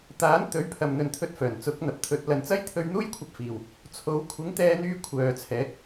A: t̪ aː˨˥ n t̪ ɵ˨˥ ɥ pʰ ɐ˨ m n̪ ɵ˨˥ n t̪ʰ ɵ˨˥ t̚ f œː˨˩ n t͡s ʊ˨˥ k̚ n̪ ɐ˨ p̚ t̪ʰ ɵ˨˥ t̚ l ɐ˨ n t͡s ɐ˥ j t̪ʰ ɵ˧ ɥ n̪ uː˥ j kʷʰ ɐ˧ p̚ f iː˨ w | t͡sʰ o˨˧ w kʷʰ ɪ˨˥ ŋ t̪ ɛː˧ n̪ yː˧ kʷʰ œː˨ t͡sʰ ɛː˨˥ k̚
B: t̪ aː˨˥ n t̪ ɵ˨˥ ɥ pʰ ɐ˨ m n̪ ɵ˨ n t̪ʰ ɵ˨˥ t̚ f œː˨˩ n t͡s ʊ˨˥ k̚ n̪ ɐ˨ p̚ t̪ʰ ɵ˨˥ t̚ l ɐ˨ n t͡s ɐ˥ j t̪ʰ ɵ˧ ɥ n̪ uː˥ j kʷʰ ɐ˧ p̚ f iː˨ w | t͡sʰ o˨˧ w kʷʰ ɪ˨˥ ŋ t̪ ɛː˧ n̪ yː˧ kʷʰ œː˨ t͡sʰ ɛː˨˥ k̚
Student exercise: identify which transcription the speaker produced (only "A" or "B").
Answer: B